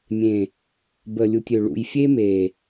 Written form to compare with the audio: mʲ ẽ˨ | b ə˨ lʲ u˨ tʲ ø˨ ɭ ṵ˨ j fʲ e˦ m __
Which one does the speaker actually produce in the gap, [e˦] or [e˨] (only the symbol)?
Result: e˨